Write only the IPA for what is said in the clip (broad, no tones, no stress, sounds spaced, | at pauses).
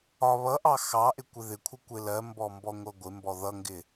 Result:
ɒ β ʌ ʔ ɑ x ɑ ʔ ɪ kʷ ɪ ð ɪ kʷʰ ɪ kʷ ɪ l ɜ m b ɔ m b ɔ ŋʷ ʌ ɡʷ ɪ m b ɔ ð ʌ ŋ ɡ ɪ